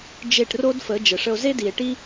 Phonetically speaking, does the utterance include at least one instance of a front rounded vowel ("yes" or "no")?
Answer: no